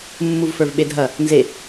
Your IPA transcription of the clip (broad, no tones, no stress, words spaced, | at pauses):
mːuvfə˞vɓedʱɐ | nze